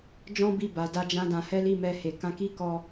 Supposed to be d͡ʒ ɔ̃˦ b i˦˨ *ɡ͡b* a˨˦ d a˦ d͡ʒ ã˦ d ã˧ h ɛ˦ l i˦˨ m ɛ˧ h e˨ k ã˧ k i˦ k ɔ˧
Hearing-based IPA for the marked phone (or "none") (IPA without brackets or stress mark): b